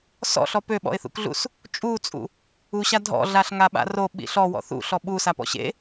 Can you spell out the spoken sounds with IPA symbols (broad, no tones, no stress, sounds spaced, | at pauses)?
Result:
s ɔ̰ ɬ ɔ p ø ɓ ɔ̰ ɪ̯ θ ṵ k ɮ ṵ s | t͡ʃʼ u t͡sʼ ṵ | u ɕ a dʱ ɔ̰ ɮ a ɬ ŋ a ɓ a̰ r o ɓ ḭ ɬ ɔ w ɔ̰ θ ṵ ɬ ɔ ɓ u s a p ɔ̰ ɕ ḛ